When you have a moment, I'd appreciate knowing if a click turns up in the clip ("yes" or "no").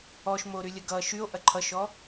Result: yes